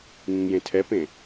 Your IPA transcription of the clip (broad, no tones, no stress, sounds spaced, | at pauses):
ŋ ĩ ŋ j ẽ tʰ ɛ p ẽ